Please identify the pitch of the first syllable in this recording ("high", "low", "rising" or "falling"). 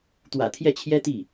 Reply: low